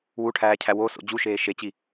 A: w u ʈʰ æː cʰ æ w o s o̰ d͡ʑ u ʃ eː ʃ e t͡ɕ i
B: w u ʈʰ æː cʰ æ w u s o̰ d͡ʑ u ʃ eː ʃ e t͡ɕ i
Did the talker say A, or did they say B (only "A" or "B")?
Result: A